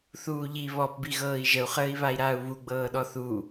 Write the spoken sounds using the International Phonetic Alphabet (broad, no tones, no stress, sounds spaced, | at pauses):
θ uː ʎ i β ɔ p b i ɣ ɤː i̯ ʒ ə u̯ χ əː i̯ β a i̯ ɾ aː u̯ β u ɡ͡b ɤː ɗ ɔ θ u